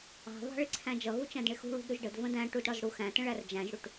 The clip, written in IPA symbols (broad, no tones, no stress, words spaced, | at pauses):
ɑ̤βɑ̤ ɭɪǀʰæ̃d͡ʒʌɣu t͡ʃæ̃dɳɪxṳ ɭṳdɾuʒɖəd və̃dæ̃ ʈudɽɒzɽuxæ̃ tə̃ɭærd͡ʒæ̃ʒɽuʈ